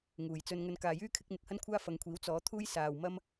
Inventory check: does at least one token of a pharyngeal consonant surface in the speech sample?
no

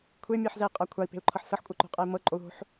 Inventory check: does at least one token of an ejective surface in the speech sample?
yes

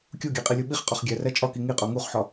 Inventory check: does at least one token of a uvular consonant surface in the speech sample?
yes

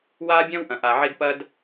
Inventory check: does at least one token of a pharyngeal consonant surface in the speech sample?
yes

